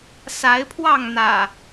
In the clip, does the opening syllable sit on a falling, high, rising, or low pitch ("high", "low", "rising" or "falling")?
rising